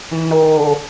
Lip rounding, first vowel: rounded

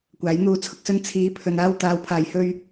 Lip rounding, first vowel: unrounded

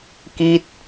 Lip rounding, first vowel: unrounded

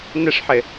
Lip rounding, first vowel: unrounded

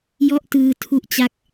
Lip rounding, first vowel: rounded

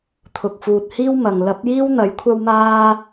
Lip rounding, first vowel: rounded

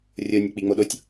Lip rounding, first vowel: rounded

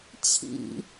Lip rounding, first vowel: unrounded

